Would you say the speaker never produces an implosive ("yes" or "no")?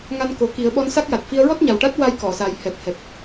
no